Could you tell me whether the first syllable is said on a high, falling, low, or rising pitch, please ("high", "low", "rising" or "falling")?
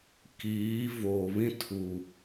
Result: rising